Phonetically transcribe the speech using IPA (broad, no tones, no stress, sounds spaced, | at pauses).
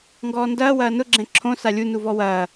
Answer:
ŋ ɡ ɔː n d ɐː w ɐː n ʊ ɡ͡ǁ ɛ̃ ǁʰ õ s a lʲ u n u v ɔ w ɐː